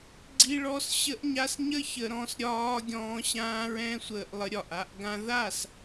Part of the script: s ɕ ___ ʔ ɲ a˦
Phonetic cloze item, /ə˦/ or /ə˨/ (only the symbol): ə˦